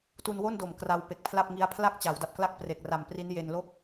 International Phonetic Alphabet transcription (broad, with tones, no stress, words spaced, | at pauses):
tu˧nwo˥˩ndo˨˩m kra˧wpe˨˩k̚pʰla˥˩p̚ŋi˦˥a̯ pʰla˥˩k̚t͡ɕa˩˦wda˨˩p̚kla˥˩k̚ pre˨˩k̚ra˨˩mpri˦˥n je˧n lo˥˩k̚